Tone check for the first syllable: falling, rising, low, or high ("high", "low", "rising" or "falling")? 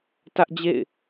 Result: high